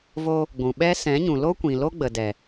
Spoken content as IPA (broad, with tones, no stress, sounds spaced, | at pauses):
v o˧ | ɡʷ ũ˨ ɓ ɛ˦ s ɛ̃˨˦ ɲ ũ˨ l o˦ kʷ ĩ˨ l o˦ ɡ͡b ə˨ d ɛ˨